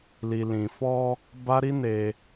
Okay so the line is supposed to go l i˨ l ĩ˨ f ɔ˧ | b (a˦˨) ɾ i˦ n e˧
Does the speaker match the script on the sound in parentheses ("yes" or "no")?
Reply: no